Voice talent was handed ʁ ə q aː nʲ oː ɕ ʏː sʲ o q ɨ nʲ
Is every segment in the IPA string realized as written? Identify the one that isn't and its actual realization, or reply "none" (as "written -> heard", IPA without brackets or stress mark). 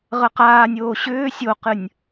none